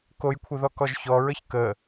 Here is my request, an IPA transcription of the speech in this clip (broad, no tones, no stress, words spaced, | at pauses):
kojkʷʰəðɔkɔʒ çɔɹəç kə